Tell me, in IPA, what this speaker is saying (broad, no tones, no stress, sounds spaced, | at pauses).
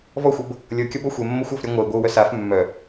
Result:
v ɔ xʷ ɤ b | lʲ ɤ kʲ ɔ b ɔ xʷ ɛ mː o xʷ ɔ f ɾʲ a ŋʷ œ i̯ ɡʷ ɤ u̯ w œ s a f mː œ